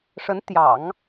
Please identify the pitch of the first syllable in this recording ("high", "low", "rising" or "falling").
rising